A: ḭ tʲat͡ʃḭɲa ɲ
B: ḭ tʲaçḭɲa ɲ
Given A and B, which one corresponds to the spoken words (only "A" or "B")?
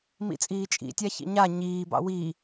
B